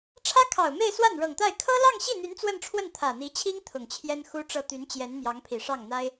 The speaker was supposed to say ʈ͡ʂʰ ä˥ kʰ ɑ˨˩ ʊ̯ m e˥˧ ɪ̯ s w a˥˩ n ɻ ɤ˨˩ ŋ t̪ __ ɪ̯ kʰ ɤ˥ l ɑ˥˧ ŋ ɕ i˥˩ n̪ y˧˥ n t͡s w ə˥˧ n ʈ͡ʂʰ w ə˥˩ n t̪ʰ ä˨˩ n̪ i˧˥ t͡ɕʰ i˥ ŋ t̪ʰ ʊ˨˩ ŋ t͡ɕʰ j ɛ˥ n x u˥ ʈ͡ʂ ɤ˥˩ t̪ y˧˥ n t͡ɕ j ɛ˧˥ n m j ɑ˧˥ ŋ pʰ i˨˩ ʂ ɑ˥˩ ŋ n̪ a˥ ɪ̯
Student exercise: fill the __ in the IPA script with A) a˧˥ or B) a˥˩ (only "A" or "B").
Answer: B